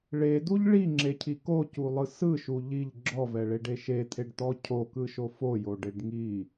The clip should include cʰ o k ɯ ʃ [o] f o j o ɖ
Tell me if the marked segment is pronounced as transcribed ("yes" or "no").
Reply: yes